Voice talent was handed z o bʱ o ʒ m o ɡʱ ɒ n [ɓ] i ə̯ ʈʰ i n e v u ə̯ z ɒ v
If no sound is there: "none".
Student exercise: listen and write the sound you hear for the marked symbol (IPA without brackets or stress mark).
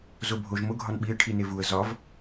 ɓ